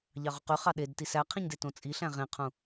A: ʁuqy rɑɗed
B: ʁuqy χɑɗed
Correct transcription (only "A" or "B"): B